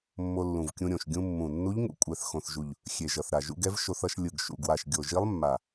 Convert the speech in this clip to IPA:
mː o˧ lː ũ˨˩ v kʲ ũ˧ ɾʲ õ˨˩ ʃ ɡʲ ũ˧ mː ũ˨˩ nː u˧˥ ʎ ŋ ṵ˧ kʷʼ ɛ˨˩ θ x õ˨˩ θ ʒ u˨˩ ʎ | xʲ e˨˩ ʒ ʌ˨˩ θ ɾ a˨˩ ʒ ṵ˧ ɡ ɛ˧˥ v ʃ o˧ θ ʌ˧ ʃ lʲ ɯ˨˩ ɡ ʃ ṵ˨˩ ɡ w a˨˩ ʃ ɡʲ o˨˩ ʒ i˧˥ lˠ mː a˨˩

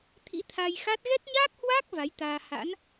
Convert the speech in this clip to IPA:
t̪ʰ ḭ˧˥ t̪ʰ a˧ j x a˦˥ t̚ ɣ ɛ˦˥ t̚ ɲ aː˦˥ k̚ h w aː˦˥ k̚ v a˨˦ j t̪ aː˧ h a̰˧˥ n

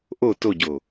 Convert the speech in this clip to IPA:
ʔ o t o ɟ o

